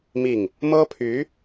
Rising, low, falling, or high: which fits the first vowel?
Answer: falling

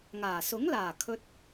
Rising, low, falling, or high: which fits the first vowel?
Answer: low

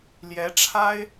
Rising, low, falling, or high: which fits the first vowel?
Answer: rising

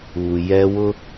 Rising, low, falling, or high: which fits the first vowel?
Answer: low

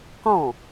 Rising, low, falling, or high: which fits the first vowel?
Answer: falling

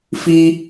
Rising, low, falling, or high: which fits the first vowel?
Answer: high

